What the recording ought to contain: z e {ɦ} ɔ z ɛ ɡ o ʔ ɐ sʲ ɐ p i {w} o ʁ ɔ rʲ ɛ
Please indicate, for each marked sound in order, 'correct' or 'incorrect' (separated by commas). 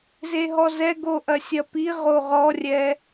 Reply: correct, incorrect